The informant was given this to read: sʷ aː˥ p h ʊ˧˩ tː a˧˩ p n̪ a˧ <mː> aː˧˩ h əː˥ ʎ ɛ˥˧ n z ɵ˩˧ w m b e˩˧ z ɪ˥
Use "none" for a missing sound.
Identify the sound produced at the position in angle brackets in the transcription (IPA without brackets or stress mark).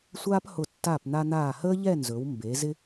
n̪